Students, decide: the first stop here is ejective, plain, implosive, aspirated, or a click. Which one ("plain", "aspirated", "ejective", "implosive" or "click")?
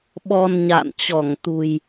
implosive